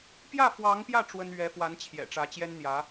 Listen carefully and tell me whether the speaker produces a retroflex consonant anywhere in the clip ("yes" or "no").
yes